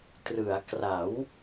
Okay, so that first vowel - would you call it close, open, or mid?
close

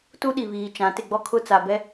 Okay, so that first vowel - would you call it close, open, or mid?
close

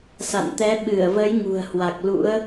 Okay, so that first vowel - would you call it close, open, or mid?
open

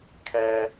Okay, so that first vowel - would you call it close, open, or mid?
mid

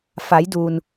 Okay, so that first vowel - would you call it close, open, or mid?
open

